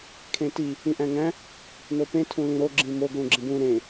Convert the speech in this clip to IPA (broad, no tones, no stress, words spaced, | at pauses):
kʰẽti | ĩʔæ̃ŋæ̃ | nopẽ tʰũlĩɾo ɡ͡ǁĩmo ɡlũɡ͡ǁĩbũ ɾẽ